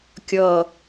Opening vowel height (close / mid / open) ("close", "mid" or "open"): mid